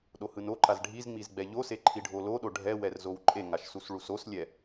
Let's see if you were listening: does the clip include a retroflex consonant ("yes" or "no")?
yes